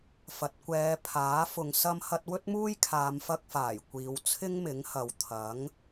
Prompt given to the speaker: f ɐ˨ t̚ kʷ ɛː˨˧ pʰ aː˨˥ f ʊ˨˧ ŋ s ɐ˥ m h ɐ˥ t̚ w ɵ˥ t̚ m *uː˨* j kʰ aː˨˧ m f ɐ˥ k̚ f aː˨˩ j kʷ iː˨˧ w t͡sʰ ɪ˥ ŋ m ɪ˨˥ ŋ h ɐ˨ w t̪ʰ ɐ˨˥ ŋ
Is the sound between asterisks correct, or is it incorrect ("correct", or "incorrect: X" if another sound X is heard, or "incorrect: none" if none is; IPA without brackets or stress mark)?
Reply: incorrect: uː˥